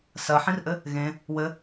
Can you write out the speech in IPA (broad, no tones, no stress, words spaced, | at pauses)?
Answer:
sɜħĩrʔɘ | ɣẽ | wɘ